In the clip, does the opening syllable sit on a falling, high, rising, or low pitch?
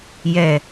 low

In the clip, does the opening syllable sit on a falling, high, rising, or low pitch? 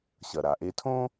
low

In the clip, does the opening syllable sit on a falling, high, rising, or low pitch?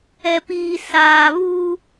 low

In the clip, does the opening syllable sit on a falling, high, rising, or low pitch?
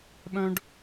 high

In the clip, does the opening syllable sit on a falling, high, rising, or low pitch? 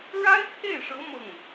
high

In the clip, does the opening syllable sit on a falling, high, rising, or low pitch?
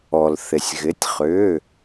low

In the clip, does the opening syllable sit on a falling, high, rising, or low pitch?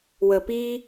low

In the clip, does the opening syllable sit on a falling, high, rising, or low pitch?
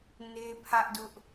high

